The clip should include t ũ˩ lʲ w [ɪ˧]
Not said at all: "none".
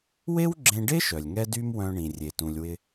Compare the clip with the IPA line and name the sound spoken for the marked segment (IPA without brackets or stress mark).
ɪ˧